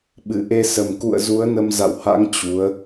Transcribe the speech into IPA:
ɓ ɨ˧˩ ʔ e˧ s ə˨˩ m k ṵ˧˨ ə̯ z u˨˦ ə̯ n ə˧ m z a̰˧˨ w h a̰˧˥ ŋ t͡ɕ u˨˦ ə̯

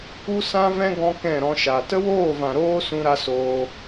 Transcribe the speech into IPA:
u˦ s ã˦ v ɛ̃˦ ɡ ɔ̃˦ k ɛ̃˦˨ ɾ ɔ̃˧ ʃ a˨ t ə˦ w oː˦˨ v ã˨ ɾ oː˦ s ũ˧ ɾ a˧ s oː˧

